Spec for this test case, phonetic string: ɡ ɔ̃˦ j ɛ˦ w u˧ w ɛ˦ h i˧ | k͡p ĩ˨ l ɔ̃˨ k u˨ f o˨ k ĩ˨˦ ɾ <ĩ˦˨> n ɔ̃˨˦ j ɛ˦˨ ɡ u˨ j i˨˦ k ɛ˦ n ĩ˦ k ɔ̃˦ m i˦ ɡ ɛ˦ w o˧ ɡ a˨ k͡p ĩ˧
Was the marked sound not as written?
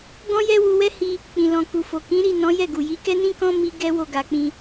yes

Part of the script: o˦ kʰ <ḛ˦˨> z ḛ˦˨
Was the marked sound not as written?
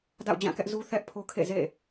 no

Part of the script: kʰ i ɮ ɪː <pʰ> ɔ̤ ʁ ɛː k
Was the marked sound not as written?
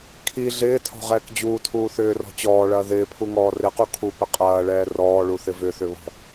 yes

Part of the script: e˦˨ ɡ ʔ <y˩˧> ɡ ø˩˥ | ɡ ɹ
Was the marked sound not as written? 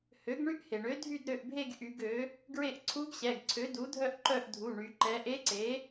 no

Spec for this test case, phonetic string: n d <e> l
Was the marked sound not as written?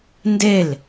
no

